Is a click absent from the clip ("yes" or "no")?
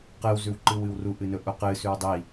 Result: no